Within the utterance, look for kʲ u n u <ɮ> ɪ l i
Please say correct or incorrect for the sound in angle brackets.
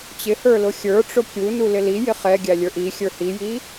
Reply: incorrect